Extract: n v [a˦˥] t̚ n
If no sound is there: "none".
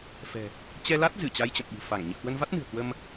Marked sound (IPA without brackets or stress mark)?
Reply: a˦˥